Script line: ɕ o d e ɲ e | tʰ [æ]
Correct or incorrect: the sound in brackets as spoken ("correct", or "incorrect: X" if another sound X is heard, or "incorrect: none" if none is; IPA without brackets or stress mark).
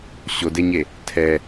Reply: incorrect: ɛ